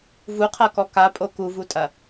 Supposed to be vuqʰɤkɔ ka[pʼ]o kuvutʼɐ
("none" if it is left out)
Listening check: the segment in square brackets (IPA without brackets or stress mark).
pʼ